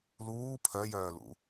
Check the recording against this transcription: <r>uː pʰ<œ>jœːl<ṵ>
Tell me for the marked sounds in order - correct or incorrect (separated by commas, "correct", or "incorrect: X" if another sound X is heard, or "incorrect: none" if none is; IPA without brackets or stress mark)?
incorrect: l, correct, correct